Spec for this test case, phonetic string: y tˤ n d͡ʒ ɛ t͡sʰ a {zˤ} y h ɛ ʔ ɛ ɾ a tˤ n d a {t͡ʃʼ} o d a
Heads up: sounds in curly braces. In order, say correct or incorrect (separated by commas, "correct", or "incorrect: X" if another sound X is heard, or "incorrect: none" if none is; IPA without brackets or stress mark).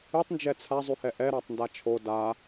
correct, incorrect: t͡ʃʰ